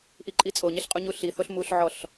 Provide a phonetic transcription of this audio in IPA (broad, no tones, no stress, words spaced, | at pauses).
ʔiǃʼit͡sʼoɲeɬ qʼuɲuɬiθoɬ muɬʕɔɬ